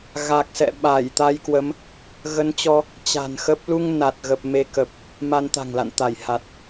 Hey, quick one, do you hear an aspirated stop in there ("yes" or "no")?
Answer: no